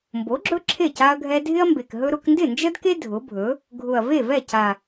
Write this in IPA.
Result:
m b o˩˥ ɡ͡ǁ ɵ˦ ǁʰ e˥˩ c a˦ ɐ̯ ɡʱ ɛ˦ dʱ ɪ˦ ɐ̯ m b e˨˩ k ɦ ɵ˦ ɾ ʊ˦ k n d ɪ˥˩ n d͡ʒ ə˦ d k e˦ dʱ ʊ˩˥ bʱ ɵ˩˥ | ɡʱ ʊ˨˩ ɐ̯ v e˥˩ v ɛ˥˩ c a˨˩

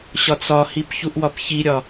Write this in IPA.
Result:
ɕ ɒ t͡s ɒ h i p ç u ʔ w ɒ p ç i ɾʲ ɒ

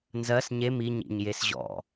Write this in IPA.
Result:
n z ɜ s ɲ e m i ɲ ḭ ɲ j e s ʑ ɔ̰

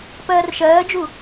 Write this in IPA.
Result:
p ɜː r ʃ ɜː d͡ʒ u

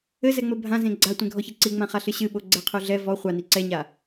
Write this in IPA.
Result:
ɘ z ɛ ŋ͡m ɘ bʱ ã z ẽ ɡ͡ǀ a tʷ ẽ ɡʱ ɔ ç e ǀ i ŋ͡m ã χ a ɬ ɨ ɕ ɨ ɓ o ɡ͡ǀ ɛ qʰ u ɮ ɛ v ɔ χʷ a n i ǀ ɛ ɲ a

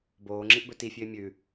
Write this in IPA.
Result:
b oː ŋ͡ǁ i ʔ b ɵ t i fʲ ʉ ɪ̯ mʲ ʉ

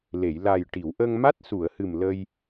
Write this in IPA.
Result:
l e˨˩˨ j l a˨˩ j ʈ i˨˩˨ w ʔ ə˧ ŋ m a˦˥ t̚ s u˨˩˨ ə̯ h ɨ˨˩ m l ə˧ j

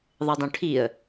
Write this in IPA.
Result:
ðˤ ɨ dˤ õ ʈʰ i ə̯

